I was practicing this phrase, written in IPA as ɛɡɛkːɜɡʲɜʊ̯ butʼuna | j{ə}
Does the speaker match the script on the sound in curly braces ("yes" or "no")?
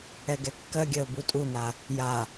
no